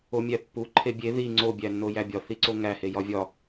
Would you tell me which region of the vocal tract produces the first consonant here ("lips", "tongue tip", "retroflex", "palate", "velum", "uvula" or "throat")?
lips